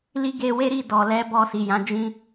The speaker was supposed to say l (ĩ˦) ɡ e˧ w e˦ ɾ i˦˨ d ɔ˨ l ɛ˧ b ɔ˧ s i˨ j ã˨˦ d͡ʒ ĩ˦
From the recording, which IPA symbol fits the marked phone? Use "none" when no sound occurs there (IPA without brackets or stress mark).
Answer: i˦